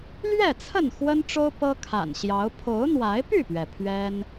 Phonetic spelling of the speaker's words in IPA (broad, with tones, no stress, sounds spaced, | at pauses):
l ɥ ɛ˥˨ t͡sʰ ə˥˨ n x w ə˦ n ʈ͡ʂ o˦ ʊ̯ p ɤ˦ kʰ a̰˨˩ n ɕ j ɑ˨˦ ʊ̯ pʰ o˨˦ ʊ̯ n̪ w a˨˦ ɪ̯ p y˥˨ p ɥ ɛ˩ pʰ ɥ ɛ˦ n